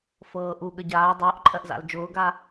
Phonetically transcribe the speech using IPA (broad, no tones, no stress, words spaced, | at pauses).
fɤːʔu ɠəɟaː dˤʊːʔǃʼɜʔza̰l d͡ʒʊːɡa